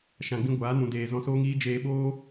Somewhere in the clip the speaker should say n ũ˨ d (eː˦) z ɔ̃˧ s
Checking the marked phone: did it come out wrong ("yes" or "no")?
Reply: yes